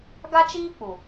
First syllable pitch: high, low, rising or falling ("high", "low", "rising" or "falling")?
high